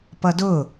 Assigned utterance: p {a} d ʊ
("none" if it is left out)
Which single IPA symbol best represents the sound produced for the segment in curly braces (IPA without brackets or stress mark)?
ʌ